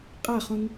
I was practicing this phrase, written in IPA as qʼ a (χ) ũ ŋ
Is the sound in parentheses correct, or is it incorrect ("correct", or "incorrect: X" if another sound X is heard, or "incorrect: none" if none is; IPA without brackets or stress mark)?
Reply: correct